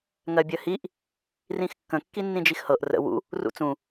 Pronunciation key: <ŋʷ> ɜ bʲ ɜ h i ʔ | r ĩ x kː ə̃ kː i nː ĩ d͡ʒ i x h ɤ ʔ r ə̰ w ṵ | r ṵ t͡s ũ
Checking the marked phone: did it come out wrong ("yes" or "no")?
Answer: yes